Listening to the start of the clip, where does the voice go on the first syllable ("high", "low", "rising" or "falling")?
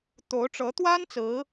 rising